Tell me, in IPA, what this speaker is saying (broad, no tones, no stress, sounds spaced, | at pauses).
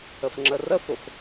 ə f ŋ͡ǁ ə r ə f ʊ f